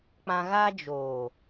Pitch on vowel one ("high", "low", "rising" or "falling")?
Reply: high